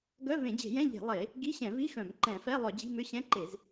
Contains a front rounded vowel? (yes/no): yes